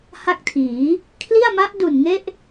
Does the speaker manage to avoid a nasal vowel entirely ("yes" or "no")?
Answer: yes